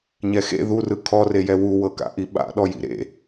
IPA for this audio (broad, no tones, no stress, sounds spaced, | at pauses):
ɲ ɛ x ḛ ð u r ɯ kʰ ɔ r e j ɛ w u w ɤ k a̰ ʔ i ɓ a̰ ɗ ɔ j ḭ ɾ ḛ